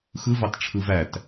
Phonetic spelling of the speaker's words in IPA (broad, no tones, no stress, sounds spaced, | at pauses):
x ɯ v ɑ t ʈ͡ʂʰ ɯ v æ t